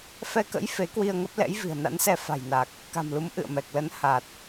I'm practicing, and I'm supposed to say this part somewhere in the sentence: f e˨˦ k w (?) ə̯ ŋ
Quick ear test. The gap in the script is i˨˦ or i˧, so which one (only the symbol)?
i˧